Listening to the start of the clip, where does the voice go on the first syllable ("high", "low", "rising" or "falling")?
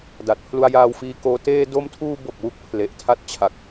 low